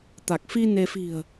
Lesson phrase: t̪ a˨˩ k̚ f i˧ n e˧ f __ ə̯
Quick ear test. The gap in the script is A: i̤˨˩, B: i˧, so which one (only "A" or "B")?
A